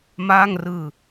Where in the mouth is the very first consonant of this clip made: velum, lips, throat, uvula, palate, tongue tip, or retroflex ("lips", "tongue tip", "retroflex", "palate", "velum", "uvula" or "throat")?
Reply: lips